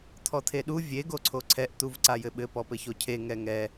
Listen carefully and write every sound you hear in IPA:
t̪ʰɔt̪ʰeɗu vʲe ɡoǀʰoǀʰɛʔ t̪uvǀajɘɓɘ pɔpɘçocʰe ŋɛŋɛ

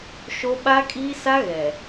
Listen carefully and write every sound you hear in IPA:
ʃo˦ ɓa˦kʼiː˦sa˦ ɣɛ˨

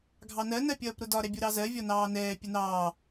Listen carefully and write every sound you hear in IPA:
ɡʱɑnɜ nɜpʲʌːpɾʊdɒ ɾɛbʲuɾɑzɜ vʲɒnɑːnɛː pʲənɑː

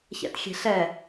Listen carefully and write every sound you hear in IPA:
çɛ̰txʲe̤ɬɛ

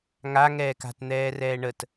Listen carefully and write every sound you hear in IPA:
ŋa ŋɛːka̤t n̪ɛːrɛːɳət

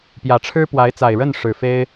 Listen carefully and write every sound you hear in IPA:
pjä˨˩ʈ͡ʂʰɻ̩˥ pwa˧˥ɪ̯t͡sa˨˩ɪ̯ɻə˥˩n ʂɻ̩˨˩fe˥ɪ̯

